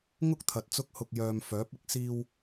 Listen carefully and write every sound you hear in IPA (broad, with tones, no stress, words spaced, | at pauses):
ŋʊ˥k̚t̪ʰɐ˨t̚ t͡sʊ˥k̚hʊ˧k̚ jœː˨m fœː˨˥p̚ɪ˨˥k̚ siː˧w